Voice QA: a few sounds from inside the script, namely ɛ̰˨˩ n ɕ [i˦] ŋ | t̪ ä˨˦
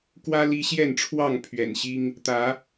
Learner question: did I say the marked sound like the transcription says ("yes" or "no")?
yes